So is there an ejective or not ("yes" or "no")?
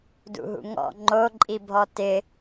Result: yes